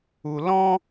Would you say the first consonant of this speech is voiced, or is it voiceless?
voiced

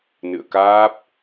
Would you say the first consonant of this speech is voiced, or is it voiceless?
voiced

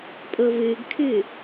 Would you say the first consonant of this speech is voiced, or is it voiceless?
voiceless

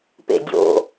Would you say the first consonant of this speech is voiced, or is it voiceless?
voiceless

